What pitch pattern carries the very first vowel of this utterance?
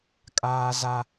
high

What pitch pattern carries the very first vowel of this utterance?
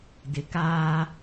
low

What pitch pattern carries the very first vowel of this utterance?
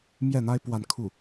falling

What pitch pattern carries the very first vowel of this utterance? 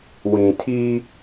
low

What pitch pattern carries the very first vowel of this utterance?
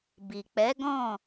low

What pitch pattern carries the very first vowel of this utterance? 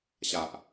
low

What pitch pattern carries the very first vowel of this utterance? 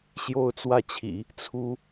falling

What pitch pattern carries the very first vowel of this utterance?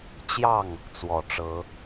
falling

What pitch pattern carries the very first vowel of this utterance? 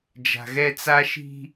low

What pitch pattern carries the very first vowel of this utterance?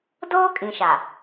high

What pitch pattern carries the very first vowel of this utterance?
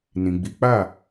low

